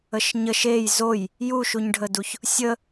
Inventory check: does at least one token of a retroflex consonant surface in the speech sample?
yes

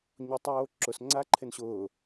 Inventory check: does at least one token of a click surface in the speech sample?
yes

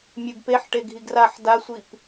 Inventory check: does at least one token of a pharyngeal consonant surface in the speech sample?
yes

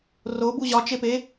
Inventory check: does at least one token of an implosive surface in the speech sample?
no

